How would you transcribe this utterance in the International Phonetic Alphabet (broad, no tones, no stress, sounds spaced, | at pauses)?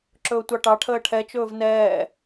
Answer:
ǁ ɵː tʷ ɑ ʈ ɑ ʈʰ əː ʈʰ ɛ t͡ʃ ɵː v n ɛː